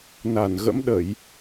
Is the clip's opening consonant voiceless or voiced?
voiced